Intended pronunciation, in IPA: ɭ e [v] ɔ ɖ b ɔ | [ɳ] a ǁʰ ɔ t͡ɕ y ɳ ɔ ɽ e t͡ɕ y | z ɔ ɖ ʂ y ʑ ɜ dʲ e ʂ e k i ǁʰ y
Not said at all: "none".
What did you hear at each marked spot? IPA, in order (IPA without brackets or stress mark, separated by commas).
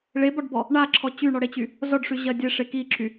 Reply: b, ɳ